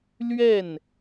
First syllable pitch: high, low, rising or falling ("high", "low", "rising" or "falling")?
falling